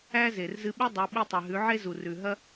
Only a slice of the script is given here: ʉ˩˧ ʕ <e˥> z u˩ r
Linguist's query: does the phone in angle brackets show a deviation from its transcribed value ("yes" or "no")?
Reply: no